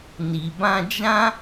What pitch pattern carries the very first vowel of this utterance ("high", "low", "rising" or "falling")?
low